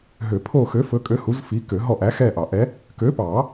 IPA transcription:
ɦ ø˨˩˦ pʰ o˦˨ x ø˨˥ f ɵ˨˥ kʼ ø˨˥ h u˨˥ z f i˨˥ k ø˨˩˦ ɦ ɔ˦˨ ʔ æ˨˥ x ɛ˦˨ ʔ ɑ˨˩˦ ʔ ɛ˨˥ | k ø˨˥ p ɑ˨˩˦

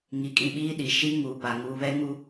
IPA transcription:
ŋ i˨ kʼ ĩ˨ ɓ iː˦ ɗ i˨ ʃ i˦ ŋ uː˨ p a˨ ŋ uː˨ β ɛ˦ ŋ u˦

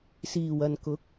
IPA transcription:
s iː˨˩ w ɐ˨ n k ʊ˨˥ k̚

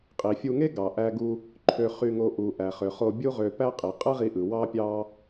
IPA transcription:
qʼ i˩ fʲ u˧ ŋ e˥ ɡ ɑ˩ ʔ æ˧ ɡ u˧ | ǃʰ ø˧ χ y˧ ŋ o˧ ʔ u˩ ʔ æ˩ χ ø˩ χ o˧ bʲ u˥ ʁ ø˧ p æ˥ qʼ i˩ qʼ ɯ˥ ʁ i˧ ʔ ɯ˩ w ɑ˥ pʲ ɑ˥

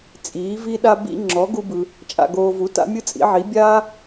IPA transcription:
t͡sʼ iː˩˥ v i˥ ɗ a˥ b ḭ˥ ŋ͡ǁ ɔ˩˥ ɡ u˧ b ɯ˩ | t͡ʃʼ a̰˧ ɡ oː˧ v u˩˥ t a̰˥ mʲ ɯ˥ t͡sʼ ḭ˩˥ ʕ i˩˥ bʲ aː˥

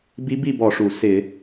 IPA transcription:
b i˧˥ b i˥˨ b ɔ˧˩˧ ʂ u˩ s ɪ˧˩˧

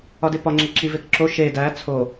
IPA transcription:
ɒ d e p ɒ ŋ͡ǁ e ǁ i v e k ǁ o ʃ e d æ t͡sʰ o

